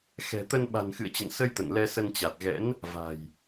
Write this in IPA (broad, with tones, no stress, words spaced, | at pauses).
xɛ̤˨˩t̪ə˧n ɓa̤˨˩nxɨ̰˧˨ə̯t͡ɕə̰˧˨n sə˧j t̪ə̰˧˨nlɛ˧ sə˧nt͡ɕa˨˩t̚ɣɛ̰˧˥n | va̤˨˩j